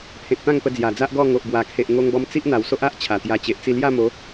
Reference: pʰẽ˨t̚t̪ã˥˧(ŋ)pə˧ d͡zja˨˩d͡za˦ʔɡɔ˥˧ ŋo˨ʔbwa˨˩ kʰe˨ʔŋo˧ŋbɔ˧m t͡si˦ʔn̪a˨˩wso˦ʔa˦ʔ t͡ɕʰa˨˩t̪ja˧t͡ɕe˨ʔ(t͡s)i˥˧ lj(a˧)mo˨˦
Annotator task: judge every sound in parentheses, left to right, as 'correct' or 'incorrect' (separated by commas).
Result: correct, correct, incorrect